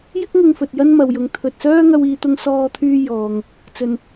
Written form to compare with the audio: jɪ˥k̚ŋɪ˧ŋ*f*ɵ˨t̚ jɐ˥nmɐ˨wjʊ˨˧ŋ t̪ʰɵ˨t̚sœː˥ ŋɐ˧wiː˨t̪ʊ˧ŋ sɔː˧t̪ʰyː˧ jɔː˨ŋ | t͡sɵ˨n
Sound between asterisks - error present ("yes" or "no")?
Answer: no